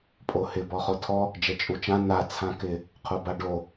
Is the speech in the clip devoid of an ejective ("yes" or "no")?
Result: no